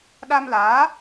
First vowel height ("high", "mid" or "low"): low